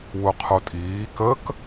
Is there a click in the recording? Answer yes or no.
no